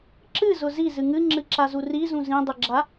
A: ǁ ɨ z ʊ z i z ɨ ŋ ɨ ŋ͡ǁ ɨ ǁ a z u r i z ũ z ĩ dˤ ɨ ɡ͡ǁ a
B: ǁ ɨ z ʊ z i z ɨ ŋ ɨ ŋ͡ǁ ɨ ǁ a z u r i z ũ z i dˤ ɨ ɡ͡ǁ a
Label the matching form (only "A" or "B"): A